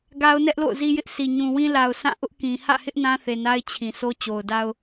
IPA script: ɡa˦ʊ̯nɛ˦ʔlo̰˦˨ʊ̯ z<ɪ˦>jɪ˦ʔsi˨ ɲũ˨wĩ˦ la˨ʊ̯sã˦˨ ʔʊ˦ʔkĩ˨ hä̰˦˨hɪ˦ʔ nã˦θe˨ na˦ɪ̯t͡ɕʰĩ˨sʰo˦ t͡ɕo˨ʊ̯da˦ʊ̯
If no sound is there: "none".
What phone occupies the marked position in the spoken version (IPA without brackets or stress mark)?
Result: i˦